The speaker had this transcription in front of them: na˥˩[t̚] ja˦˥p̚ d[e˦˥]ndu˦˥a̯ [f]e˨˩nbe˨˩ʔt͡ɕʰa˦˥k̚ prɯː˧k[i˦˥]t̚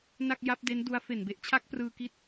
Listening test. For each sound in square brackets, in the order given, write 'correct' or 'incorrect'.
incorrect: k̚, correct, correct, correct

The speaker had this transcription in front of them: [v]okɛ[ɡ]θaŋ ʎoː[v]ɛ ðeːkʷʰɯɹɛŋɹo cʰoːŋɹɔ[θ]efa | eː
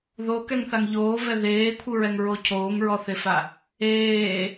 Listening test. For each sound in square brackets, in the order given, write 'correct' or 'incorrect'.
incorrect: ð, incorrect: ŋ, correct, correct

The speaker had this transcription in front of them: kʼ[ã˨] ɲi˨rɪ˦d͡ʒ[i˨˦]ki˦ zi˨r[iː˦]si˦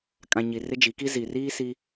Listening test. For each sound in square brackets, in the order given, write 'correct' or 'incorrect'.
correct, correct, correct

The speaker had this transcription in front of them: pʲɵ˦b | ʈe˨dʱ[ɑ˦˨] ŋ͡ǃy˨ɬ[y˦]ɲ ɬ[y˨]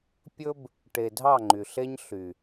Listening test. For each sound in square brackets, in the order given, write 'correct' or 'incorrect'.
correct, incorrect: e˦, correct

